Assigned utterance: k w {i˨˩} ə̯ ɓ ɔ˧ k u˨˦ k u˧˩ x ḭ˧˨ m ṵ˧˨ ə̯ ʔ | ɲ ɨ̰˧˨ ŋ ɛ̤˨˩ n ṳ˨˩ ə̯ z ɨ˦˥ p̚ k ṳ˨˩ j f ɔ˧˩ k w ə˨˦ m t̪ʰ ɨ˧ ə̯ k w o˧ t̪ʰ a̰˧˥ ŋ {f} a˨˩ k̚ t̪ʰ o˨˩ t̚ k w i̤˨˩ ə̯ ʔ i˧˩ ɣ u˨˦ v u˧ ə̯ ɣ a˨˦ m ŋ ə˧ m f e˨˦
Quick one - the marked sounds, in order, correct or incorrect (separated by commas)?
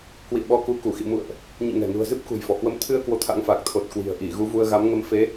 incorrect, correct